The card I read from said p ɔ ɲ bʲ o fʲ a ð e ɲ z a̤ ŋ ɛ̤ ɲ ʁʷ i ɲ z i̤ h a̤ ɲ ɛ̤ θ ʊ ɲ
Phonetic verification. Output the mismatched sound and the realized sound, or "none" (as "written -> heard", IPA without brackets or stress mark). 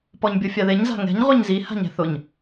i̤ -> i